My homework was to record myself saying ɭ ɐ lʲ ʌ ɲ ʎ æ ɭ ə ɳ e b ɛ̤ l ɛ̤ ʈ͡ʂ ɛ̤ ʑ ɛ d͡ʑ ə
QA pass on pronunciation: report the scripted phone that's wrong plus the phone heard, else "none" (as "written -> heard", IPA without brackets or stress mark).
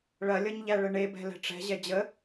none